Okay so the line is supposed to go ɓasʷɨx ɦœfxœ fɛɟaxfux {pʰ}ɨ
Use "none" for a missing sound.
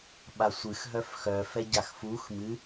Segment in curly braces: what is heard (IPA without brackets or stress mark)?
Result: m